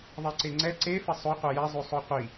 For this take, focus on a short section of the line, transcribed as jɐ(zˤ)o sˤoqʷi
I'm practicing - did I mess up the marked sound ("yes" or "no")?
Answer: no